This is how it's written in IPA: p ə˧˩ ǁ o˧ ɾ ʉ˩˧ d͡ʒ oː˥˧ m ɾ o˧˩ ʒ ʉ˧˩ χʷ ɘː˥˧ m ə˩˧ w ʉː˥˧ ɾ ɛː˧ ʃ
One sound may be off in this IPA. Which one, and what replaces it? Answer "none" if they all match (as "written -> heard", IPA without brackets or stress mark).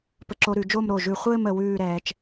ʃ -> t͡ʃ